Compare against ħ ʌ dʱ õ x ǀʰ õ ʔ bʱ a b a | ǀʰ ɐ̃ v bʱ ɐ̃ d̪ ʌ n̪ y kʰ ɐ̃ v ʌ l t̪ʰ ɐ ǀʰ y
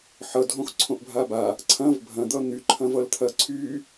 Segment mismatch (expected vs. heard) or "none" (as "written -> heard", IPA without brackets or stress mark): kʰ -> ǃʰ